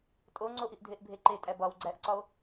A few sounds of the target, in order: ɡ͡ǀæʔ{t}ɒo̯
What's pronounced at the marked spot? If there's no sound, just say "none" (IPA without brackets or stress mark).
ǀ